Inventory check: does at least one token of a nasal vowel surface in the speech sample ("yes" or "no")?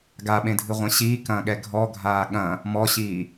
yes